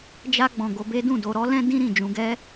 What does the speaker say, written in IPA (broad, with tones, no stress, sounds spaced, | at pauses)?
d͡ʒ a˧ ɡ͡b ɔ̃˨ ɡ o˧ b e˦ d ũ˦˨ d o˧ ɾ ɔ˦ l ɛ̃˦ d ĩ˦ ɾ ĩ˦˨ d͡ʒ ũ˧ ɡ ɛ˦